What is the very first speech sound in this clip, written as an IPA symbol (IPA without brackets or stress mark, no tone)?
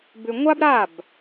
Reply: b